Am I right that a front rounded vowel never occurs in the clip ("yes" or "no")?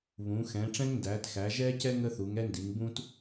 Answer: yes